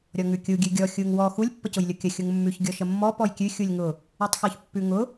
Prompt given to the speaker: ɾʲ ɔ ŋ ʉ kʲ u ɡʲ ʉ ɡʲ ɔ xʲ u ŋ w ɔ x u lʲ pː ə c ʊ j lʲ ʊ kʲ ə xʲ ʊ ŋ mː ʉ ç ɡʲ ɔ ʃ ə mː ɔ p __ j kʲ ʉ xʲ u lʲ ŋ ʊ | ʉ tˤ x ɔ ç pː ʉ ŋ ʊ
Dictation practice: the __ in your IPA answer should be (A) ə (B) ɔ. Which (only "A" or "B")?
B